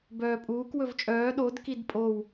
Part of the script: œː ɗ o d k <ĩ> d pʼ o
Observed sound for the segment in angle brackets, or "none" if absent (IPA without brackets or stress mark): i